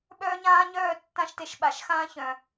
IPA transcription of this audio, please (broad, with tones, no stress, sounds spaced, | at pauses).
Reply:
ɓ œː˦ ɲ ãː˦ ɲ œː˦˨ tː ã˦ ʃ t e˧ ʃ ɓ a˨ ʃ x ãː˦ ç œ̃˨